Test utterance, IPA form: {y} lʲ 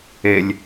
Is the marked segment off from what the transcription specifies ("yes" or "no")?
yes